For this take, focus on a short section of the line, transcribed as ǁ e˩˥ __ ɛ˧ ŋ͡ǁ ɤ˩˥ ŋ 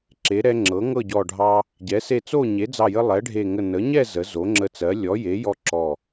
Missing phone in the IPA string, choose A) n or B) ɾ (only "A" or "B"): B